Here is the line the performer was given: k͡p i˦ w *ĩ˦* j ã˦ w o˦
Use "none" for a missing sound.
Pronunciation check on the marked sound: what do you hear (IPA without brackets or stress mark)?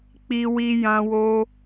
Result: i˦